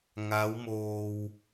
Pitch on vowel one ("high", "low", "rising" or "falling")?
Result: rising